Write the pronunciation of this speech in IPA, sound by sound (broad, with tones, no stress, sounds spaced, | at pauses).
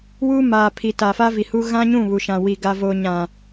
w uː˦ m aː˨ pʰ i˨ t a˨ f aː˦ v i˨ h u˦ ɣ ã˦ ɲ ũ˦˨ β u˨ ʃ ã˨ w i˨ ɡ a˨ v oː˨ ɲ ã˨